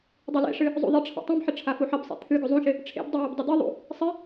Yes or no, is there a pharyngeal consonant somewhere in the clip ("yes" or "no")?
yes